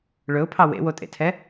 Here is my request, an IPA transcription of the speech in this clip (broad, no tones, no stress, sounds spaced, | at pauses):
ɭ ɵ ʊ̯ pʰ ɑ w ḛ w o tʼ ḛ tʰ ɛ